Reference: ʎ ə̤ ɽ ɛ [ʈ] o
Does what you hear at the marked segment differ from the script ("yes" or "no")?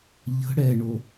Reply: yes